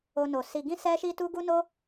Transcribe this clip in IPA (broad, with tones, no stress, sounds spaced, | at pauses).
o˧ n o˨ s i˧ ɡ ĩ˦ s ɛ˦ ʃ i˦ t u˦ ɡ u˦ n o˦